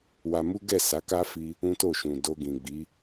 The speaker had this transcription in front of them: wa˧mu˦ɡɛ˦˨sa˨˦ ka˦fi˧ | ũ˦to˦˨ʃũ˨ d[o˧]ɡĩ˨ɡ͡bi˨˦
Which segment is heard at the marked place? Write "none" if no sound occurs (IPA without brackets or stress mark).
o˧